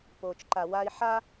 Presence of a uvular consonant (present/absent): absent